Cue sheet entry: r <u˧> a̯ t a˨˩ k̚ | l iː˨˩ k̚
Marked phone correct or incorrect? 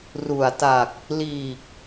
incorrect